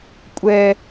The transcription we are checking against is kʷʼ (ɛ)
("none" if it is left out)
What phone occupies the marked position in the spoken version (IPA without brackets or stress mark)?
ɛ